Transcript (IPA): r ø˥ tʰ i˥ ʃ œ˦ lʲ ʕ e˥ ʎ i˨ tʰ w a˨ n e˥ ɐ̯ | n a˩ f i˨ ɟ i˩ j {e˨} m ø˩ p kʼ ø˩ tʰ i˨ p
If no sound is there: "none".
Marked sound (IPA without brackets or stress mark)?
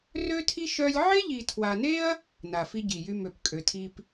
y˨